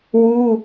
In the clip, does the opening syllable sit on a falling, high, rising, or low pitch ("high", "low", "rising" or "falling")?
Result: high